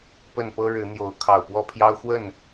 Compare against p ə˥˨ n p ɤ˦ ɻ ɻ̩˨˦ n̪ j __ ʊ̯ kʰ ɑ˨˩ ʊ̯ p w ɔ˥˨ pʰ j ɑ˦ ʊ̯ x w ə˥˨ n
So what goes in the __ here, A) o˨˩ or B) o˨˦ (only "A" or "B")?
B